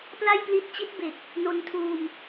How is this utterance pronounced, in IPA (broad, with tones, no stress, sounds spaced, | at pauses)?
p l a˥˩ j p l i˦˥ t̚ t͡ɕ i˦˥ t̚ b e˨˩ k̚ | n o˧ n tʰ uː˧ m